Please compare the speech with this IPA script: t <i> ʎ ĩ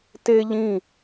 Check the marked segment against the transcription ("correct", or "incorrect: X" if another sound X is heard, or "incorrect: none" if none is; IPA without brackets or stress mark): incorrect: e